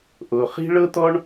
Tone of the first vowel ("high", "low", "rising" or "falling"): low